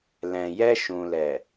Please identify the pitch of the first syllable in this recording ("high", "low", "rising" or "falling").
low